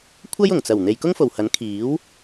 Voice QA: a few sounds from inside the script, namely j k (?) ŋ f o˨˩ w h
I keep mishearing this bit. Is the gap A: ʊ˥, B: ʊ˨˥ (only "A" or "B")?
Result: A